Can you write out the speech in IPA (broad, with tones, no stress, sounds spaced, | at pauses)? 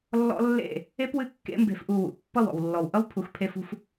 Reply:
lː ɔ̰˦ lː ḛ˦˨ | e˦ p w ɨ˦˨ kː ḛ˦ m b e̤˧ f ʔ u˧ w ṵ˨ pː ʌ˦˨ w ɔ̰˨ w lː ɔ˨ w ʔ ʌ˦ w pʰ u˧ x pʰ e˦ f ṳ˦ f